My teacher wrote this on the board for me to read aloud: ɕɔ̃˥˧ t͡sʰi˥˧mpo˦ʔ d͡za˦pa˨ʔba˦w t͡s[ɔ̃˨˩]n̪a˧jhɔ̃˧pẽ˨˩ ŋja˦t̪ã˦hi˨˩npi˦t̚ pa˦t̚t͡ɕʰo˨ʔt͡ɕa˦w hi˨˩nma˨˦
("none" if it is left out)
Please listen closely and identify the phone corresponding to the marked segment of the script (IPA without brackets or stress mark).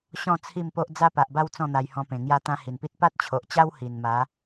ɔ̃˥˧